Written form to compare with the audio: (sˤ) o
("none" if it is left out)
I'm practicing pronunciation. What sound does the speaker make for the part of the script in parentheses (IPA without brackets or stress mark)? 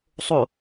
sˤ